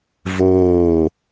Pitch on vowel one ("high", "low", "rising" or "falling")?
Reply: falling